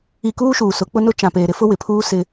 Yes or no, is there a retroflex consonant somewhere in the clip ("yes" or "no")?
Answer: no